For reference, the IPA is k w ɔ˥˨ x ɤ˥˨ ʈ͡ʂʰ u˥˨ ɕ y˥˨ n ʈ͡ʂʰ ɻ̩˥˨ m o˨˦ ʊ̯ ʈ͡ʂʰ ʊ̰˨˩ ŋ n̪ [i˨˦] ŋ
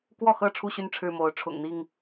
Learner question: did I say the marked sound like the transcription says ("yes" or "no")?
no